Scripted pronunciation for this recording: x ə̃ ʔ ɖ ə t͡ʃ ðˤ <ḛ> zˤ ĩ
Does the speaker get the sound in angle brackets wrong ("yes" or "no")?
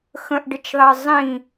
yes